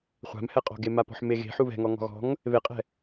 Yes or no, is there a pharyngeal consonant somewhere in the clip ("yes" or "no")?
yes